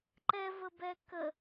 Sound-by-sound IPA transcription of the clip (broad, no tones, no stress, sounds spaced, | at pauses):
ǃ ɛ v ə b ɛ k ə